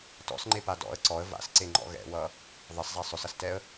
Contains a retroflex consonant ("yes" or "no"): no